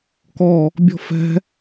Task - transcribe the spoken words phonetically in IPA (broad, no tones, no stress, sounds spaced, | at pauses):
k ɔ | bʲ ɔ̤ f ɛ̤